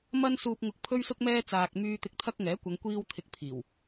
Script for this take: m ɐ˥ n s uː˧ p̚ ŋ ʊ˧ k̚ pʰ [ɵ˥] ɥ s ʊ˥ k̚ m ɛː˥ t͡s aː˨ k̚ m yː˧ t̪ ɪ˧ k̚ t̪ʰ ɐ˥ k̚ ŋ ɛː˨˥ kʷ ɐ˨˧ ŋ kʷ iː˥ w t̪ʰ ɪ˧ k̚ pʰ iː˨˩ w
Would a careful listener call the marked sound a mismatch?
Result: no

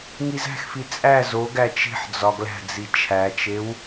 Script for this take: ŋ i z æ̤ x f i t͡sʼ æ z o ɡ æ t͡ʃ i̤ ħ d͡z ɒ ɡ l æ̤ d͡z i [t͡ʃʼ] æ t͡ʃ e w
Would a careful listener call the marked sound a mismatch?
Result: yes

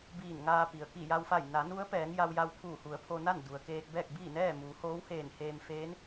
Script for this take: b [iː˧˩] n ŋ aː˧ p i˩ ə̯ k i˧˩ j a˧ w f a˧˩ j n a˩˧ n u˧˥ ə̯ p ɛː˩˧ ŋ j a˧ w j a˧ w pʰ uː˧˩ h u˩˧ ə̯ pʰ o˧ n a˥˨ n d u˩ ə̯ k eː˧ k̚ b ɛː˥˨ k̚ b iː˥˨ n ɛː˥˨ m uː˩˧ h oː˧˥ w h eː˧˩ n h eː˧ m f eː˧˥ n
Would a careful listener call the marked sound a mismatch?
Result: no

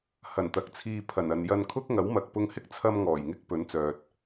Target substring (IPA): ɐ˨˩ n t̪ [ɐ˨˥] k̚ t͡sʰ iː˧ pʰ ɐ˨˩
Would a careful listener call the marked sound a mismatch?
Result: no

